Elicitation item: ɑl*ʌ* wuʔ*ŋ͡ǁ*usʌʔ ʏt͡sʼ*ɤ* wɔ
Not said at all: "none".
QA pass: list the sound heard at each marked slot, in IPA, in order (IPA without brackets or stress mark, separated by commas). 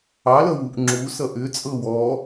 ʌ, ŋ͡ǁ, ɤ